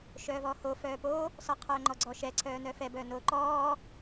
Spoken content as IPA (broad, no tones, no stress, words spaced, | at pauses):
ʃœːvɔːho fœːpo | sɔqʰœːŋ͡ǃɔɡ͡ǀɔ ʃɛ ǀʰœːnœfɛ bœːnoːǃɔː